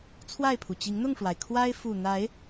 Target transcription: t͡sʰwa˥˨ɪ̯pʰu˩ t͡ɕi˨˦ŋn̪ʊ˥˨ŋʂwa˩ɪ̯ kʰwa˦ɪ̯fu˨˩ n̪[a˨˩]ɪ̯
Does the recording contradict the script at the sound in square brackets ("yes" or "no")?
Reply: yes